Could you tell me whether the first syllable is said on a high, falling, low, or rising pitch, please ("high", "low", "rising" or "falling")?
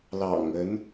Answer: low